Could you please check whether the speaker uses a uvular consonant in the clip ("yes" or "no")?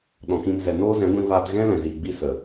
no